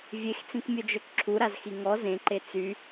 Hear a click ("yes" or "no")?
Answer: yes